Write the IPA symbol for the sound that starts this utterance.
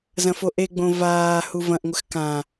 z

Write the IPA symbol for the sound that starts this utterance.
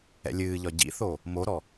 ɛ̰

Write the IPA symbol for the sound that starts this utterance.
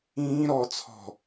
ĩː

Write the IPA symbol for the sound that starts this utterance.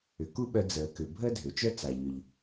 ʏ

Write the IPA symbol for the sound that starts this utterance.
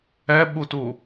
ɛ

